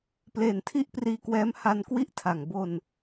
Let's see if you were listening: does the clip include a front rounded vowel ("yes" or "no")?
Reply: no